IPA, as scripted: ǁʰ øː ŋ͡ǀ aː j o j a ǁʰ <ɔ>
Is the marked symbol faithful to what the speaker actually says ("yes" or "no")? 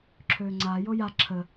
no